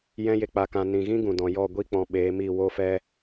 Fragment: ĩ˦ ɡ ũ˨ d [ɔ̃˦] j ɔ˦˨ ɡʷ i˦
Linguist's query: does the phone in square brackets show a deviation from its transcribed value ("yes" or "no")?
yes